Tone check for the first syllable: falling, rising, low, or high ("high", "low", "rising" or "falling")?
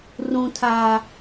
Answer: low